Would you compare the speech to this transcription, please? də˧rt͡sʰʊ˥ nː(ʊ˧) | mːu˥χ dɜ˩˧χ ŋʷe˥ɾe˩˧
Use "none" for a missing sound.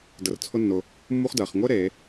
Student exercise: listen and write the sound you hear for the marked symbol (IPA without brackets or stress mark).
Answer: ʊ˧